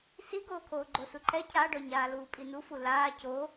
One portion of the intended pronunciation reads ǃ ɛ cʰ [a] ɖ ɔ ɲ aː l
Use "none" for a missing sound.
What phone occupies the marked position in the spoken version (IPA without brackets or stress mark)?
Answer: a